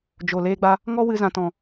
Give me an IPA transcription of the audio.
d͡ʒo˨ leː˧ɡ͡ba˧ | ŋɔ˦wɨ˧ zã˨tɔ̃˨

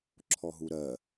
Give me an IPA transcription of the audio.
ǁʰɔɦuɾɜ

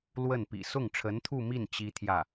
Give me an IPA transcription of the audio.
lwə˥˩npḭ˨˩ sʊ˥˩ŋʈ͡ʂʰə˧˥nt̪ʰu˥˧mi˥˩n t͡ɕi˥t̪ʰjä˥˩

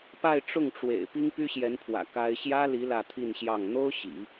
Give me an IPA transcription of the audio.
pa˥˧ɪ̯ʈ͡ʂʊ˥˩ŋʈ͡ʂwḛ˨˩ɪ̯ pi˥ŋpy˥ɕjɛ˧˥npʰwä̰˨˩ ka˥ɪ̯ ɕjä˥li˧˥ lä˥˧t̪ʰi˥˧nɕjɑ˥˩ŋ n̪o˥ʊ̯ ɕḭ˨˩˦

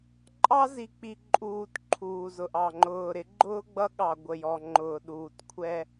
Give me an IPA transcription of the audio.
ǃʼɑ˦zi˨k͡pi˨ǃʼuː˨t ǃʰuː˨zʊ˨ʔɑ˨ ŋ͡ǃʊː˨ɾɪ˨˦ɡ͡ǃʊː˦ ɡ͡bʌ˦ɠɑ˨ ɡʷə˨jɔ˨ŋ͡ǃʊː˨ ɗuː˨tkʷʰɛ˦

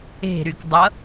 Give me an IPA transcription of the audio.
e̤ɾykdˤʌ

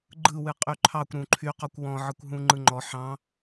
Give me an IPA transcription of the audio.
ɡ͡ǃɯwɨ qʼyǃʰɑkʷ ɾũǃʰyqɔkʷ wɔ̃ ʕɯkʷɦũŋ͡ǃɯŋ͡ǃɔ ħɑ̃

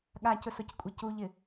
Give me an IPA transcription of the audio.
ɠacʊsockʷʼe cuʎɪ

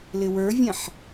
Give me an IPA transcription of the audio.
lɪwə˞vʲɛ̃ħ

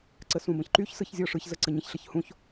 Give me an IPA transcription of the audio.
ǀəsũbə̃çǃyç sɯçzʲɔʂɯç zəǀəɲə̃ç ɬəçhũç

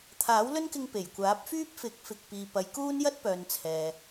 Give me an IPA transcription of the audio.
t̪ʰaː˨˥wlɵ˥nkɪ˧ŋ pe˨˩jkʷaː˨˥p̚fyː˥p̚fɪ˨˥k̚ fɪ˨k̚piː˨ pɐ˨˧jkuː˥n jɐ˥t̚pœː˨n t͡sʰɛː˨

